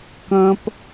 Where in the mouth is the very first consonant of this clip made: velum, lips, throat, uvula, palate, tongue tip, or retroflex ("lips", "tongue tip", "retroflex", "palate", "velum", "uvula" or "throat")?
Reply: velum